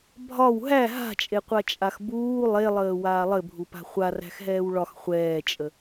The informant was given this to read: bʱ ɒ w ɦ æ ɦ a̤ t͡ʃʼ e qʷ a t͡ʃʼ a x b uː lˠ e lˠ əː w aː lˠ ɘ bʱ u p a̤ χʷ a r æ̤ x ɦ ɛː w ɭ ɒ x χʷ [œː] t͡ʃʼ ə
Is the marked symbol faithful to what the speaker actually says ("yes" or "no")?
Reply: no